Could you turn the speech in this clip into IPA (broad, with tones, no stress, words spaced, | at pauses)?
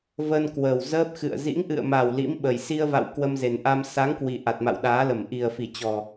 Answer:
və˧n kwəː˨˩wzəː˦˥p̚xɨ̰˧˨ə̯ zḭ˧˥ŋʔɨ̰˧˨ə̯ma˨˩w lḭ˧˥mɓə˨˩j si˧ə̯va̰˧˨w kwə˧mze˨˩nʔa˧m sa˨˦ŋkwi˨˩ ʔa˨˩t̚ma̰˧˨wɗaː˨˦lə˧˩m ʔi˨˩ə̯fi˧˩ t͡ɕɔ˨˩